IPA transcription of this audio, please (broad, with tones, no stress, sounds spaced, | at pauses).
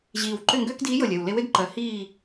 ʑ iː˨˩ w ǃ ʏ˥˨ ŋ ɡ ʏː˥ k d iː˧˥ j ɤ˨˩ lʲ ɜ˨˩ w l e˧˥ w e˥ ɡ ǃ ɜ˩˥ h iː˥˨